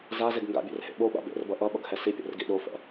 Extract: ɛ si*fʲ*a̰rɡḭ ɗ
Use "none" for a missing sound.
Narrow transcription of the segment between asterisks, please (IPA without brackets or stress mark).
pʲ